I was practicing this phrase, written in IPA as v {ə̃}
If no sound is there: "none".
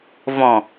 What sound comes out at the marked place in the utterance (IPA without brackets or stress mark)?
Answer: ɔ̃